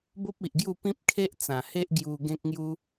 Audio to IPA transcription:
bo˦p̚i˨ʔɡju˥˧ pĩ˦p̚kʰe˦ʔt͡sã˨˩he˦ʔ ɡju˧ ɡẽ˦k̚ŋju˦

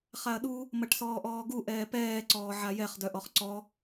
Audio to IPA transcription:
χaɐ̯ɗu | mɐʈsɔːʔɔːɡu ʔɛːpɛː ǀɔːʕajɛχ dœʔɔχǀɔ

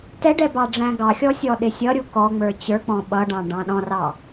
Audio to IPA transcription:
tɛɖɛ bɑɖ͡ʐæ̃ɡɑxʲɔ sʲɔɗɪsʲʌɾʲu kɔŋ͡mə˞ t͡ɕə˞k͡pɔ̃ ɓʌɖɑ̃ ɖɑ̃ɗɔ̃rɑ

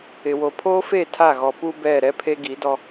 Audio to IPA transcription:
ɪ˨wo˨pʰoː˦fe˦˨ tʰa˦˨ɣɔ˨ pu˦ bɛ˦˨ ɾɛ˦pʰe˦ ɡi˨˦dɔ˦

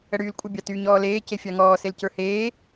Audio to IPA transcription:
əɽyːlkʷʼə bʲɑtyːɲɔːleː cefʲɑŋɔː selcə˞heː

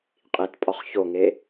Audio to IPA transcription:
qʼitpʼɒχ çoŋe

